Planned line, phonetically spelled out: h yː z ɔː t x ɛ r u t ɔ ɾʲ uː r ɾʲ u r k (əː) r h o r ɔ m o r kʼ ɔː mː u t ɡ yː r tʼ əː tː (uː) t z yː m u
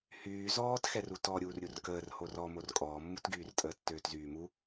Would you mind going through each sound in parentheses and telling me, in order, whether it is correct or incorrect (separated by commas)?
correct, incorrect